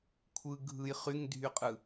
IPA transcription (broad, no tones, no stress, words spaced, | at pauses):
kʷʰɯ ɡʱɯj χyŋdʱyqʼɯ